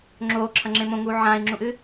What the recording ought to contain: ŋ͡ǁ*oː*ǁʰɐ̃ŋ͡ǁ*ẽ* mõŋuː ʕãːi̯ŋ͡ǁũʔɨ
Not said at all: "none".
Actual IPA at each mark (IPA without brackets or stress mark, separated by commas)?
oː, ẽ